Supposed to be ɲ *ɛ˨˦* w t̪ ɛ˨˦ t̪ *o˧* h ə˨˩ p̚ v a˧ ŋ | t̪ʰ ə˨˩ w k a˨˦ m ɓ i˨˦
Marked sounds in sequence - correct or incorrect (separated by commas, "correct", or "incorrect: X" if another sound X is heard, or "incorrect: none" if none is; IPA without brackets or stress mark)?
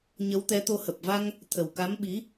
incorrect: ə˨˦, correct